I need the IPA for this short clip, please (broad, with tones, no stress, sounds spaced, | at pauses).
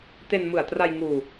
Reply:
t e˧ n m ɯ˨˩ a̯ t r a˧ j ŋ uː˧